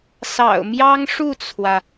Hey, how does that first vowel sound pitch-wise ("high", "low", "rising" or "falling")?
low